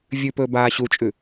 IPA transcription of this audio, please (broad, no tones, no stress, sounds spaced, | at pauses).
vʲ ʉ p ɵː b aː ɕ u t͡ʃʼ ʉ